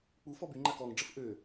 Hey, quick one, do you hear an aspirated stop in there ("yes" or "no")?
no